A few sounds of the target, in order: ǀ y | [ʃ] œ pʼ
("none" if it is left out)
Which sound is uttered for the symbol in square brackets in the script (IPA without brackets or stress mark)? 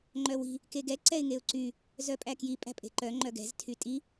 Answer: z